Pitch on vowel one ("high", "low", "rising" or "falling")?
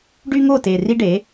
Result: high